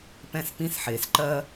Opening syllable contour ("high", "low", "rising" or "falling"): high